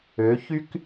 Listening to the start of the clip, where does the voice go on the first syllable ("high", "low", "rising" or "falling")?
rising